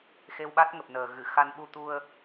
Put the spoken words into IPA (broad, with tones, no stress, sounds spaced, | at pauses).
x e˧ w ɓ a˦˥ t̚ ŋ ə˨˩ p̚ n əː˨˩ ɣ ɨ˧˩ x a˧ n ɓ u˧ t̪ u˧ ə̯